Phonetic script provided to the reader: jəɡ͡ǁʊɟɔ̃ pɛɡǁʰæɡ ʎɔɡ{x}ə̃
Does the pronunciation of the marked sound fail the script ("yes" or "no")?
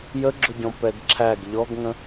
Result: yes